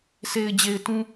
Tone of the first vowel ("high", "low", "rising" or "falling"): low